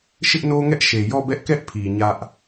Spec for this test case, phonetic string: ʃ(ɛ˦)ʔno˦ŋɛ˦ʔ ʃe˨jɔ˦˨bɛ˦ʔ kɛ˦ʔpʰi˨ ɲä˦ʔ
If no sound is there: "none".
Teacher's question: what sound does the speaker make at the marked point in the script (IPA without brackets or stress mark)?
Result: ɪ˦